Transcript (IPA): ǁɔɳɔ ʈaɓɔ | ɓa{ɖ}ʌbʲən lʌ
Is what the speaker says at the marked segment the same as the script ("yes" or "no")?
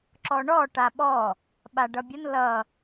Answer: yes